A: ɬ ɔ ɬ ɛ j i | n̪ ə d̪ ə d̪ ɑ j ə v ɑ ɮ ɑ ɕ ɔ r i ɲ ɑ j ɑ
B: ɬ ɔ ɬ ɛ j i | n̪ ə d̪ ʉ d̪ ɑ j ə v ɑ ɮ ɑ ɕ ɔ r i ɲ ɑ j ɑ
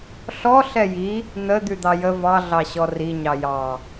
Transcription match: B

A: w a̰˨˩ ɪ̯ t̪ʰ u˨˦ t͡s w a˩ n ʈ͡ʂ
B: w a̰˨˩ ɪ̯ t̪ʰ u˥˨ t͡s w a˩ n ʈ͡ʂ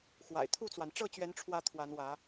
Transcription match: B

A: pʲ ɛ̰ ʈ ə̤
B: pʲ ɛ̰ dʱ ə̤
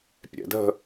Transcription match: B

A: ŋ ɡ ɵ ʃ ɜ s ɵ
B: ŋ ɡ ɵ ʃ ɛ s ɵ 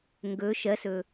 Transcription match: A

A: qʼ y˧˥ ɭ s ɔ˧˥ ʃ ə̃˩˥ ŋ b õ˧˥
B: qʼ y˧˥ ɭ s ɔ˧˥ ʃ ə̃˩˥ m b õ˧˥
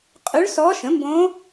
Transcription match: B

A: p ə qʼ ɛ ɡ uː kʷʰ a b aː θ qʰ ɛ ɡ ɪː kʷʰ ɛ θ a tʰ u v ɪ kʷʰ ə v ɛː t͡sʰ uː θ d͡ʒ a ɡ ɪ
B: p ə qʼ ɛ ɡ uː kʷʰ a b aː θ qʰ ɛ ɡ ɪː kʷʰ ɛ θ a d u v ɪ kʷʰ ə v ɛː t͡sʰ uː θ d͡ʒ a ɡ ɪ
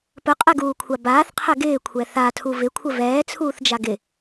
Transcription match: A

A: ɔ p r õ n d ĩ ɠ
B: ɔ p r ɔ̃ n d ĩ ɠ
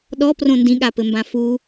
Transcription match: A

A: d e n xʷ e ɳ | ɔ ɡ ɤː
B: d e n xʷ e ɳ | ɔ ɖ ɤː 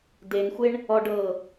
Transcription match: B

